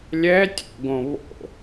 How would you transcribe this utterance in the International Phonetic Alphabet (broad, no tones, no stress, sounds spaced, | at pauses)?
lʲ ɛ tʲ o̰ ɡ õ β o̰